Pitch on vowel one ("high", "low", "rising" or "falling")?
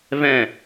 falling